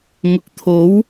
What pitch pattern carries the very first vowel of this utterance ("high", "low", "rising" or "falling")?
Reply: low